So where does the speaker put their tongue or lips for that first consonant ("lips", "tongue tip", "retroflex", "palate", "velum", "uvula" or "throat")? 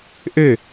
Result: throat